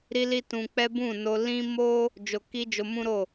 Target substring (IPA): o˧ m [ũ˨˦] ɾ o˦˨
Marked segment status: incorrect: ũ˦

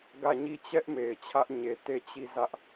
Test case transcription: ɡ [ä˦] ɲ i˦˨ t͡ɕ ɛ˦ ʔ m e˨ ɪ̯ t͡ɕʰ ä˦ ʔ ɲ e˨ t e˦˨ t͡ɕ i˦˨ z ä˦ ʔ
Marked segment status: incorrect: ä˦˨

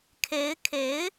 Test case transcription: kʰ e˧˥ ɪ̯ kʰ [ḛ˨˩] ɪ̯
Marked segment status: incorrect: e˧˥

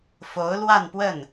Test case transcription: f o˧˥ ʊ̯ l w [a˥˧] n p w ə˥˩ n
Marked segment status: correct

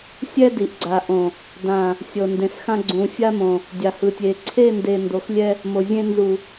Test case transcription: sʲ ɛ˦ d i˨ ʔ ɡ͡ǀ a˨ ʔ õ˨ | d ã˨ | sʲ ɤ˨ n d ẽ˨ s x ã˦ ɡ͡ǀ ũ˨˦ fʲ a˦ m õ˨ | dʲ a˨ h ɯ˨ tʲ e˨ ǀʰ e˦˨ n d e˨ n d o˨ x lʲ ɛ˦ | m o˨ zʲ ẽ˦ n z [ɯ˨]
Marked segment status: incorrect: u˨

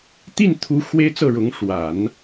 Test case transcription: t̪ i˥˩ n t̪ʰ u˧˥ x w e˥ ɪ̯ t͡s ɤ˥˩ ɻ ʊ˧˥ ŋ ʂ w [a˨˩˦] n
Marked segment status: correct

